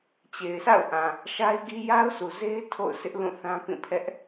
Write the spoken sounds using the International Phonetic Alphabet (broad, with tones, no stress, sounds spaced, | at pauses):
t͡ɕ e˨ ɪ̯ s a̰˦˨ ʊ̯ ʔ ã˨ | ʃ a˦ ɪ̯ ɡ i˦ j a˦ ʊ̯ s u˨ z e˦ ɪ̯ tʰ o̰˦˨ ʊ̯ sʰ ɪ˦ ʔ l ũ˦˨ θ ã˦ p ĩ˦˨ pʰ ɛ˦ ʔ